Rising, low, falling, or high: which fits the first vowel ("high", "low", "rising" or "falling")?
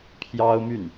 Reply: high